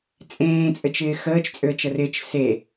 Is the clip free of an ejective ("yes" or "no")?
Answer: no